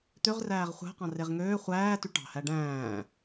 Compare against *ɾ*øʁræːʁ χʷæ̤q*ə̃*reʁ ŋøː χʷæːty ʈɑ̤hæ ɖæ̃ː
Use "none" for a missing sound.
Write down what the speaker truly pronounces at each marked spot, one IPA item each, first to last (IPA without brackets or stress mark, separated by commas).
t̪, ɑ̃